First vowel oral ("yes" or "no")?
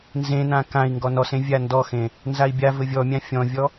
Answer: no